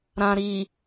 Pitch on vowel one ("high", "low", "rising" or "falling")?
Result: low